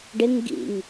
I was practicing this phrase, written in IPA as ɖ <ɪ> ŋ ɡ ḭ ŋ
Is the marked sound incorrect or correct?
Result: correct